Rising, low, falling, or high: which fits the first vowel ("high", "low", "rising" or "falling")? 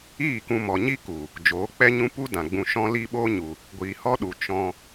falling